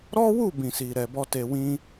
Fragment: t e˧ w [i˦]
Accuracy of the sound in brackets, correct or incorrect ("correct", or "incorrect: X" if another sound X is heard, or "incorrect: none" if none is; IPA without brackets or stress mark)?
incorrect: ĩ˦